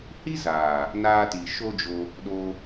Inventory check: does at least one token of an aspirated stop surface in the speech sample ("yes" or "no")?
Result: no